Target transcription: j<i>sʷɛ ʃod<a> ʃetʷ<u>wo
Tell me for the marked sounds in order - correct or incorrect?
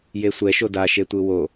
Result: incorrect: e, correct, incorrect: ɯ

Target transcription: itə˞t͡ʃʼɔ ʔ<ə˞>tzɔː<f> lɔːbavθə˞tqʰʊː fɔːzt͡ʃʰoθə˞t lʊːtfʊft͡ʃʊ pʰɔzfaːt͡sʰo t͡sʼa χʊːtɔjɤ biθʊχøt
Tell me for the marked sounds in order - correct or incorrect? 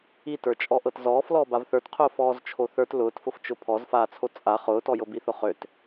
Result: incorrect: ɤ, correct

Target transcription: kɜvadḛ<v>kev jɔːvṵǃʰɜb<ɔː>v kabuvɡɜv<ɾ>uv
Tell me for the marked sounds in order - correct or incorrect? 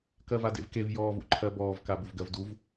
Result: correct, correct, incorrect: d

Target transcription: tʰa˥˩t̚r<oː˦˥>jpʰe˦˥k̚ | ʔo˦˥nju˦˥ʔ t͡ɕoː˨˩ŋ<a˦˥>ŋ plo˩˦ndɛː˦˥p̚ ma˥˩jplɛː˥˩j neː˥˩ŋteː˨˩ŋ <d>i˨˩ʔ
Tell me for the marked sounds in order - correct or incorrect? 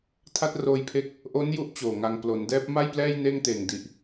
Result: incorrect: oː˧, incorrect: a˧, correct

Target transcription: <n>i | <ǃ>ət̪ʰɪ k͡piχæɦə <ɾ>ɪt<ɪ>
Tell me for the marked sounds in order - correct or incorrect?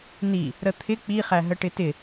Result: correct, incorrect: ɾ, incorrect: ʈ, correct

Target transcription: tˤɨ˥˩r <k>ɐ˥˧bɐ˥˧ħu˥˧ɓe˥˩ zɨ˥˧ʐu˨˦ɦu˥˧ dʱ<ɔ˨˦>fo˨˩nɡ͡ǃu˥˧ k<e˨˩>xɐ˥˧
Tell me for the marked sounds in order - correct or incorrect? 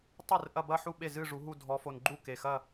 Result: incorrect: ʔ, correct, correct

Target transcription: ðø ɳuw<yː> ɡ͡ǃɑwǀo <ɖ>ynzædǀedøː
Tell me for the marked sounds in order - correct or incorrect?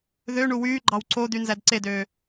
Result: correct, incorrect: d̪

